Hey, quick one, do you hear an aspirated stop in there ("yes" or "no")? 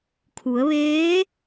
yes